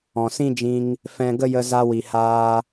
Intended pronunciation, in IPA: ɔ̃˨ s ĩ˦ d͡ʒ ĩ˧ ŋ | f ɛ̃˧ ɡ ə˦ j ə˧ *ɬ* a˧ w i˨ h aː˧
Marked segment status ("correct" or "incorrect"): incorrect